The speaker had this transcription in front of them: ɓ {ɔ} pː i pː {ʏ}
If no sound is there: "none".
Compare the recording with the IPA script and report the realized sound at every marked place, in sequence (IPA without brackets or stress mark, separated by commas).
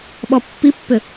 ɔ, ʏ